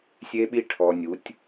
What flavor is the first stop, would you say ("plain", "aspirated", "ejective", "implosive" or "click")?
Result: implosive